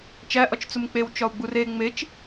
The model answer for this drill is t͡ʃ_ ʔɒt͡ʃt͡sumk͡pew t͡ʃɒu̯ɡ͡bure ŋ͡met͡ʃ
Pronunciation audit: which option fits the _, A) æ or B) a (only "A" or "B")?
A